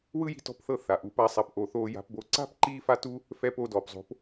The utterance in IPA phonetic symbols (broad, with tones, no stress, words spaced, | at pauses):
wɯ˦ji̤˧tɔ̤˧pθɤ˧ θa˨ʔu˨˦p a˦sˤa˧p ʔo˨θoː˧ja̤˧pbo˧ ǀa̤˦p ǃiː˦fa˦tu˦ | fɛ˧p o˧dɔː˨pzˤo̤˨˦p